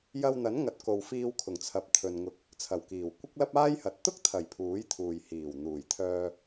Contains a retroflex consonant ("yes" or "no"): no